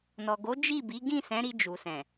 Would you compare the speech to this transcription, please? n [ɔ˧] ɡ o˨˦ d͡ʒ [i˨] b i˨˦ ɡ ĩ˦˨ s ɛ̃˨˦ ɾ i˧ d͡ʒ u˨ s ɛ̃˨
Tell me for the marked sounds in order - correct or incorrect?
incorrect, incorrect

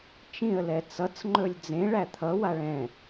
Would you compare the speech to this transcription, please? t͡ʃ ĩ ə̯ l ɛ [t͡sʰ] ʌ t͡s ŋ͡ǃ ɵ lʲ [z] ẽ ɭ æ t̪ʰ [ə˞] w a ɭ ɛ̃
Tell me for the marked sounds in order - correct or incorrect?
incorrect, incorrect, incorrect

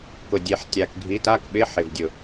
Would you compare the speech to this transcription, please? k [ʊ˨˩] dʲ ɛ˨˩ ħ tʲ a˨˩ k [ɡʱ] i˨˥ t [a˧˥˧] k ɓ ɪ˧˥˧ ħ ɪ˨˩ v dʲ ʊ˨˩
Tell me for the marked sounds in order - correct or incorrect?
correct, correct, correct

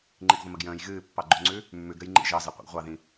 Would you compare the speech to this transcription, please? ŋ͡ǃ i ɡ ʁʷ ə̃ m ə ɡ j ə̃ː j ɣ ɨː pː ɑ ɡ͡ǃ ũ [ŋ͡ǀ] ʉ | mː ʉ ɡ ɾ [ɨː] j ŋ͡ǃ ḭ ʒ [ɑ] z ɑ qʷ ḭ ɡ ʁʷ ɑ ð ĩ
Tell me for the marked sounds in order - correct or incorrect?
correct, incorrect, correct

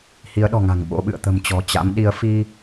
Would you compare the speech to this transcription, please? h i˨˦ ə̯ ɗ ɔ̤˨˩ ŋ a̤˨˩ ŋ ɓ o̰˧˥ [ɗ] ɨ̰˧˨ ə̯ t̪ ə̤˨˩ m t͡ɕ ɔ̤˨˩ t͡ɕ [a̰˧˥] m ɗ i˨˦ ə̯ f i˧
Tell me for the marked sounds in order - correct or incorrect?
incorrect, correct

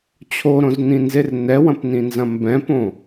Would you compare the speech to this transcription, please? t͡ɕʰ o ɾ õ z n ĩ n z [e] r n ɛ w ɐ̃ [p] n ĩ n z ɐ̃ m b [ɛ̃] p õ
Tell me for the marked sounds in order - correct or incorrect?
correct, correct, correct

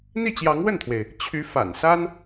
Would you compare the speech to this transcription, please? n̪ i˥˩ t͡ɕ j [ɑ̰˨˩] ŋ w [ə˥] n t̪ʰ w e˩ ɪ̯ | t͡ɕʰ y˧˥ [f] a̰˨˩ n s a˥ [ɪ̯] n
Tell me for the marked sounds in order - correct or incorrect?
incorrect, incorrect, correct, incorrect

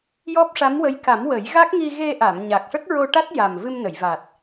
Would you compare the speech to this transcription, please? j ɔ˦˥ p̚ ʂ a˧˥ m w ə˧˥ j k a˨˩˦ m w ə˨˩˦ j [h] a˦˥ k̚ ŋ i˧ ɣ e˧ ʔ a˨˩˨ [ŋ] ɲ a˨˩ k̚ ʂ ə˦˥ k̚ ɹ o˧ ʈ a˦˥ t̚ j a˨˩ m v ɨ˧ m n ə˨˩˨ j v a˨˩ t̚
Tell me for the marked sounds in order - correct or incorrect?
incorrect, incorrect

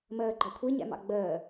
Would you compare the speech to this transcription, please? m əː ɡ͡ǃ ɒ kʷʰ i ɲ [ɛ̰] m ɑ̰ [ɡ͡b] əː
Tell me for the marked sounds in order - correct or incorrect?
correct, correct

